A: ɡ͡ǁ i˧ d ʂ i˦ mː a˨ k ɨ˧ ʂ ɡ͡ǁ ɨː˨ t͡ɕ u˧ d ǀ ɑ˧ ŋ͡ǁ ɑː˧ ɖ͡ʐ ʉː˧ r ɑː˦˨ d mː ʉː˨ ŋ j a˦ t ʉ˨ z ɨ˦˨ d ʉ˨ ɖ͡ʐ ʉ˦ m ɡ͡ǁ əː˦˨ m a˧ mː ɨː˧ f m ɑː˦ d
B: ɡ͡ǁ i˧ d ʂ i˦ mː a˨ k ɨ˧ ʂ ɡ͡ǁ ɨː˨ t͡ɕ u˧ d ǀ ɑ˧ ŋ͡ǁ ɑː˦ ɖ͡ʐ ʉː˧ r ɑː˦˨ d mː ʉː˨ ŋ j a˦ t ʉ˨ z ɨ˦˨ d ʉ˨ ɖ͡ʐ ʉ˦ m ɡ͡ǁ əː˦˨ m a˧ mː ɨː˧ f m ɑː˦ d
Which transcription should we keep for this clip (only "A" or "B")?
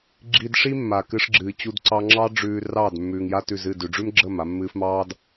B